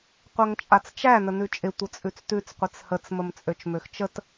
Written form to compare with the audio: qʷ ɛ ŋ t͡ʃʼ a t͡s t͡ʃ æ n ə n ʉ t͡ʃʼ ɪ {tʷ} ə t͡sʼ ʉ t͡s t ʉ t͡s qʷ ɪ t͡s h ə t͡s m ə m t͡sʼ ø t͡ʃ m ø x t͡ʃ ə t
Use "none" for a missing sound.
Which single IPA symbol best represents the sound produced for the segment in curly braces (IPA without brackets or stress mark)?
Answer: tʷ